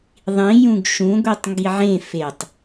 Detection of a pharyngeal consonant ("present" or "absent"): present